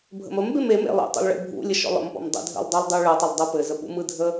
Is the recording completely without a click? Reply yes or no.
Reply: yes